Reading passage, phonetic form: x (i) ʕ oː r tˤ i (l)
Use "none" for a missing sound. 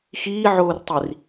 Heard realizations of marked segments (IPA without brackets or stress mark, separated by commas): iː, r